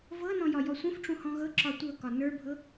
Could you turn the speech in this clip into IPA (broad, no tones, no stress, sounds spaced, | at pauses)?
v ɤ n ɔ̃ j ɒ j ɔ sʷ ə̃ f ʈ͡ʂ ũ h ɔ̃ ɣ ɤ ǁ ɒ tʷ ɤ k ɒ n ə˞ bʱ ɤ